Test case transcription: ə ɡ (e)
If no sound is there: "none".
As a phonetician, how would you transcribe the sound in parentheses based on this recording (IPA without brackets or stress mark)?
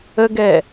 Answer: ɛ